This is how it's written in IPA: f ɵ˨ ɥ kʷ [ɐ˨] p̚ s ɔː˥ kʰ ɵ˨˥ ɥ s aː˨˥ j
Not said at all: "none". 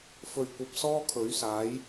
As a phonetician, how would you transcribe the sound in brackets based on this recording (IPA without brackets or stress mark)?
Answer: ɐ˨